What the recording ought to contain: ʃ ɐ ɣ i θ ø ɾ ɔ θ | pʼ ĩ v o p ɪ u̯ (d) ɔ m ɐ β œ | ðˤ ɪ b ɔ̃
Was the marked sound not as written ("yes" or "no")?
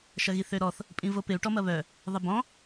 yes